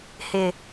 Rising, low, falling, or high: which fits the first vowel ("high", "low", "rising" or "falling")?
low